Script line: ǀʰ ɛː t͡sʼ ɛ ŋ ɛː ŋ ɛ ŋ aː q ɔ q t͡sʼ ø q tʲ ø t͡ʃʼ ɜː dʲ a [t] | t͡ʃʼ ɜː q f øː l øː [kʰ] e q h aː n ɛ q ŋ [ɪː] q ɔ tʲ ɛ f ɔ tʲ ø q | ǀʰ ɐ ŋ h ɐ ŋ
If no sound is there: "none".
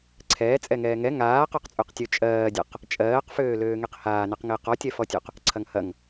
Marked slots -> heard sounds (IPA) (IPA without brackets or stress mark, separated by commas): q, ŋ, ɪː